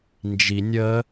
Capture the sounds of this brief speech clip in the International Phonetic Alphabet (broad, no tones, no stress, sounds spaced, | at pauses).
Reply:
n d͡ʒ i nʲ ə